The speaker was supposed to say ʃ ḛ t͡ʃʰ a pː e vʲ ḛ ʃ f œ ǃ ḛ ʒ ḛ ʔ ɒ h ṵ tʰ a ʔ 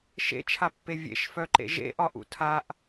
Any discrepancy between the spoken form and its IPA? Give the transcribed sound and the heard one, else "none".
h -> ʔ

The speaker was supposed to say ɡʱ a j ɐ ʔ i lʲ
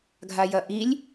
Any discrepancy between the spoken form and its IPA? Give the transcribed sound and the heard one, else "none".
none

